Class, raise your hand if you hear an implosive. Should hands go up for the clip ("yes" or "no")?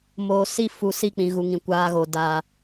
no